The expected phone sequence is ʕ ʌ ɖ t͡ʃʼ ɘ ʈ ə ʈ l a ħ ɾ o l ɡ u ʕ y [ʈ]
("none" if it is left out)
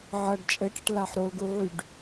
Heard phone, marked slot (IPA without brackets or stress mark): ɖ